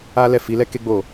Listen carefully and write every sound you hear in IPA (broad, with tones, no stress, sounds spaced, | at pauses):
a˦ l ɛ˦˨ f i˨˦ l ɛ˦ k e˦ ɡ͡b o˦˨